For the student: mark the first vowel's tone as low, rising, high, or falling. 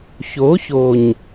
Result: rising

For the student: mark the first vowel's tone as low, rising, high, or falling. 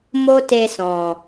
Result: high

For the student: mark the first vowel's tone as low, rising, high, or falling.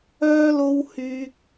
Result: high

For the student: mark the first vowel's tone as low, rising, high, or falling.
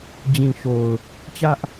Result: low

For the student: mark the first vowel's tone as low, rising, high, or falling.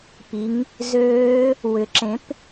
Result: rising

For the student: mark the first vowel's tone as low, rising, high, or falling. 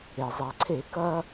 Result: low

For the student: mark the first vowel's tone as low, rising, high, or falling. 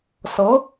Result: rising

